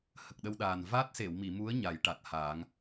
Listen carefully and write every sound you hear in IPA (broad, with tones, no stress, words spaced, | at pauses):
hə˨˩k̚ɗə˧wɗaː˨˩n va˦˥t̚se˨˩˨wmi˨˩˨mu˧˥ə̯ ɲa˨˩˦jʈa˨˩t̚haː˨˩˦ŋ